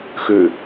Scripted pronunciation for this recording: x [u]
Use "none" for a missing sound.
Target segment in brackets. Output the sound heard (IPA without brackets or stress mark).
ʉ